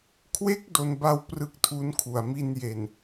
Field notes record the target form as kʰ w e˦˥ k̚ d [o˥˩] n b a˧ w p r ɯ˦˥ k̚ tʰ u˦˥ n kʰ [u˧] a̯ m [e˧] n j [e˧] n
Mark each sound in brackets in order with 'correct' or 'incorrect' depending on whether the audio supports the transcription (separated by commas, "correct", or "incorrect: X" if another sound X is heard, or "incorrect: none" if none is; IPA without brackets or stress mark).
incorrect: o˧, incorrect: u˨˩, incorrect: i˧, incorrect: e˨˩